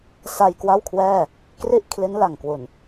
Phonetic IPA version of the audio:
s a˧ j k w a˥˩ w kʰ w ɛː˥˩ | k r i˥˩ ʔ kʰ l i˦˥ n l a˨˩ ŋ k w u˨˩ n

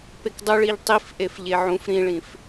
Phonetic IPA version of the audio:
p e k dˤ u ɭ i ʎ tˤ i f ʔ e f ʎ e ʕ ũ f ɾ ĩ ɭ ĩ f

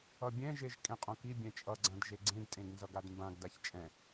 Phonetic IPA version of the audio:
ʌ bʲ ɛ̃ ʒ e ʒ kʼ ẽ qʼ õ k i bʲ ɛ̃ t͡ʃʼ ʌ ɡ͡ǀ ã d ʒ e ɡ͡ǀ ẽ d tʼ ẽ ɡ n z ʌ ɡ a d m b ã ɡ d a ç t͡ʃʼ ɛ̃

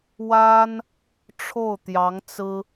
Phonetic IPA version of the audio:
w a˥ n | ʈ͡ʂʰ o˥˩ ʊ̯ t̪ j ɑ˧˥ ŋ t͡s ɹ̩˥

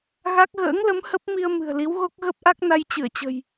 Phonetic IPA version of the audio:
ɣ a˦˥ k̚ ɣ ə̰ː˧˥ ŋ l ə˨˦ m h ə˦˥ p̚ m i˧ ə̯ m ɨ̤˨˩ ə̯ l i˨˦ w ɣ o˦˥ k̚ ɣ ə˦˥ p̚ ʔ a˦˥ k̚ n a˧ j t͡ɕ ɨ˧˩ ə̯ t͡ɕ ə̤˨˩ j

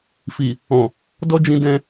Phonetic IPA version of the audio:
f i˨ | ɔ̃˨ | d ɔ˦ d͡ʒ ĩ˧ d ɛ̃˧

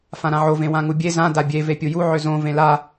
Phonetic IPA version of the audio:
f ã ɾ ã ʕ o v ẽ w ã ŋ u bʲ e z ã d a bʲ e v e pʲ u j u ʕ ø z õ v ẽ l a

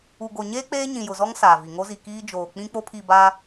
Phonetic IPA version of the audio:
u˨ ɡ o˨ ɲ eː˦ k͡p eː˦ ɲ ĩ˨ j ʊ˨ z ɔ˦ ŋ s aː˨ v i˨ ŋ o˦ z i˨ k iː˦ d͡ʒ oː˨ k͡p ĩ˦ k͡p o˦ pʰ i˦˨ b aː˦

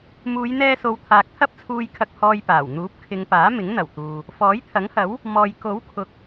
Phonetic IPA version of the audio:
m uː˨˧ j n̪ ɛː˧ s o˨˧ w t̪ʰ aː˨ k̚ t̪ʰ ɐ˥ p̚ t͡sʰ uː˧ j kʰ ɐ˧ k̚ h ɔː˧ j p aː˨˩ w n̪ uː˨˥ p̚ kʰ ɪ˨˧ ŋ p aː˨˥ m ɪ˨˥ ŋ n̪ ɐ˨˩ w t̪ uː˨ | f ɔː˨˥ j t̪ʰ ɐ˨˥ ŋ h ɐ˨˥ w | m ɔː˨ j k o˨˥ w kʰ ʊ˨ k̚

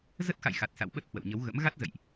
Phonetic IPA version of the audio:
z ə˦˥ t̚ x a̰˧˨ j x a˨˩ t̚ s a̰˧˨ w ɓ ə˦˥ t̚ h w ə̰˧˨ w ɲ ə˨˦ w ɣ ə̰˧˥ m ɣ a˦˥ t̚ z ə̰˧˨ j ʔ

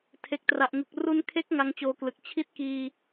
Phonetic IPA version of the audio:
tʰ e˨˩ k̚ t r a˨˩ ʔ ŋ ɯ˨˩ k̚ r u˧ n kʰ e˦˥ k̚ ŋ a˦˥ ŋ t͡ɕ oː˧ k l ɯ˨˩ k̚ t͡ɕʰ i˥˩ t̚ k iː˧

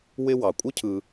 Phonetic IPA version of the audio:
w ɪ˦ w ɑ˩ kʷʼ ɪ˥ cʰ ɯ˨

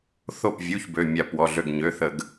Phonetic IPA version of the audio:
θ o˧˩ p vʲ u˩˧˩ ç b ø˩˧˩ mʲ a˧˩ p w ɔ˩˧˩ ɮ ø˧˩ ɡ ɲ ø˩˧˩ θ ə˧˩˧ ɡ

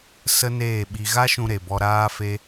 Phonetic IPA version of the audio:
s ə˦ n eː˦˨ ɓ i˧ ɣ a˦ ʃ ũ˧ ɾ e˨ b ɔ˧ ɾ aː˦ f e˦

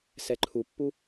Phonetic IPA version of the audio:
s ɛ ǃʰ u pː u

